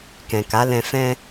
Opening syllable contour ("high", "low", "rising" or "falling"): low